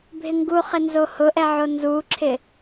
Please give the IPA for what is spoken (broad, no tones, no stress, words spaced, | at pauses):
bʱɪŋɡuχɪ nzohʊʔɛ ʕonzuǁʰɪ